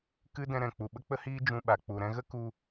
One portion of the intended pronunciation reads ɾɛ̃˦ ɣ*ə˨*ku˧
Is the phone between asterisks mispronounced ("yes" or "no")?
yes